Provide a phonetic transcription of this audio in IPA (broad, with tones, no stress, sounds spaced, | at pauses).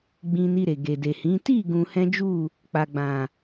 ɡ͡b ĩ˧ n i˧ ɾ e˨ ɡ e˨ d e˨ h ĩ˨˦ t i˦˨ ɡ ũ˧ h ɛ̃˦ d͡ʒ u˦˨ | k͡p a˨ ɡ͡b ã˨